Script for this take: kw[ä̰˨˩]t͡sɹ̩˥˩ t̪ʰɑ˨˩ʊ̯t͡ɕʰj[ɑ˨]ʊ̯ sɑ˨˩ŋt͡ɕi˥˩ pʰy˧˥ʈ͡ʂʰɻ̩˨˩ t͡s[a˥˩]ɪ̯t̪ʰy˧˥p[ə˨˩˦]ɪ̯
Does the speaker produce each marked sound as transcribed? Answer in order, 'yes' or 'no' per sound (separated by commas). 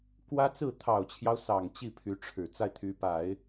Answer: no, no, yes, no